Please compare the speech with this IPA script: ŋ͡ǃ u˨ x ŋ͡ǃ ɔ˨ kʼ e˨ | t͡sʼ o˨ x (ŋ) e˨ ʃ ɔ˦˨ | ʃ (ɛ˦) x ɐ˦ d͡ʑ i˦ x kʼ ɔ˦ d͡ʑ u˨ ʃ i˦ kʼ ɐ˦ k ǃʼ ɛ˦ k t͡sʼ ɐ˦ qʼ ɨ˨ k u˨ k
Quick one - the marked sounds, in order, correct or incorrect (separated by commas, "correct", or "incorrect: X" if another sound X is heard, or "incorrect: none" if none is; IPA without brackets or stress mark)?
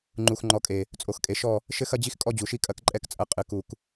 incorrect: kʼ, incorrect: ɘ˦